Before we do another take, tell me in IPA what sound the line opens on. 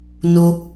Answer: n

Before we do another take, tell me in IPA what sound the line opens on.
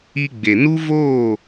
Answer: i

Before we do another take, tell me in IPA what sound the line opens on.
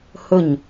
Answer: h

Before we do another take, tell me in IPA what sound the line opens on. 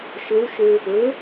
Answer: ʃ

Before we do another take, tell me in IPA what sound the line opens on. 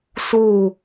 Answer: s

